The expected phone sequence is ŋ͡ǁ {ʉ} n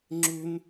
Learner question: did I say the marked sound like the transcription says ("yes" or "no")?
yes